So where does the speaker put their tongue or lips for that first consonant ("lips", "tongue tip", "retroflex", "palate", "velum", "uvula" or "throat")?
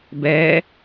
lips